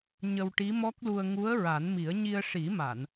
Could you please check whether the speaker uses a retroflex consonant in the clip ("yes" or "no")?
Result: yes